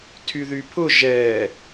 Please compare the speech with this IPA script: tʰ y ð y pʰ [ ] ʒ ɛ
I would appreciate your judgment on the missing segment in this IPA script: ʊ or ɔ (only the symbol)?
ʊ